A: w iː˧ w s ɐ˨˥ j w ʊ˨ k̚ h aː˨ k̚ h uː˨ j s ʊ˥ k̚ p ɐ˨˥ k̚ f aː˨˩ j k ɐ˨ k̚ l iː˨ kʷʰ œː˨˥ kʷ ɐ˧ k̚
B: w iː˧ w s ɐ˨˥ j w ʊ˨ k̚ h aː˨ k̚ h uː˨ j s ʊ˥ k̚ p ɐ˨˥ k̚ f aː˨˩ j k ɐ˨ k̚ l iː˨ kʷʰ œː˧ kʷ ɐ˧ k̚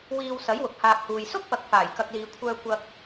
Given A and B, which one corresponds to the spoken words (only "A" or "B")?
B